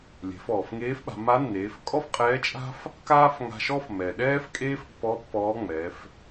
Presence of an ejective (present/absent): present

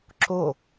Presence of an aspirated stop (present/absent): absent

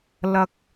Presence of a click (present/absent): absent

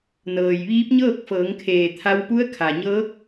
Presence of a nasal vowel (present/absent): absent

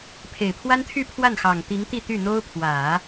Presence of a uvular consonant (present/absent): absent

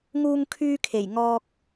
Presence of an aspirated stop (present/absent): present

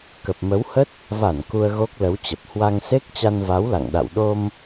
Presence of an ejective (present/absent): absent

